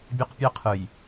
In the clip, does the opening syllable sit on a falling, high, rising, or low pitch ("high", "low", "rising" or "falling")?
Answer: high